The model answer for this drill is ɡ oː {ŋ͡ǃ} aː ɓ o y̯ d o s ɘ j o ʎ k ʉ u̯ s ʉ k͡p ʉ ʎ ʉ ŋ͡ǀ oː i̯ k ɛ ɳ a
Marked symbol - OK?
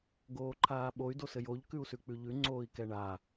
no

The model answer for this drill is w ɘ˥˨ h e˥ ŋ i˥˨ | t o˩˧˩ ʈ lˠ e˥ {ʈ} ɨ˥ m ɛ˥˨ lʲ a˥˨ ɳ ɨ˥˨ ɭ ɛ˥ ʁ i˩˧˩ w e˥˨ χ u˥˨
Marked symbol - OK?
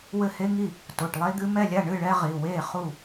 no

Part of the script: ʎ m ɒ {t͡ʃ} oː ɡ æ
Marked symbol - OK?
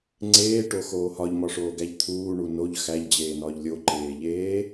no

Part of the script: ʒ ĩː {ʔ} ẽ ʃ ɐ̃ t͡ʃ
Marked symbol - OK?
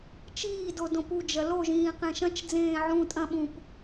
no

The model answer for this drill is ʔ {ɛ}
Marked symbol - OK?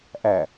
no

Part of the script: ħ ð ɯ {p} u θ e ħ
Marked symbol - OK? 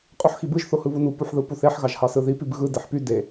yes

